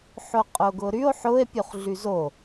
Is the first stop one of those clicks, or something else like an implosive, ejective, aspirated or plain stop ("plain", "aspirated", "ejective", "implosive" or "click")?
ejective